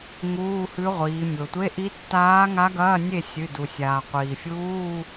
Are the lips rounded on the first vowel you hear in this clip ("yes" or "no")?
yes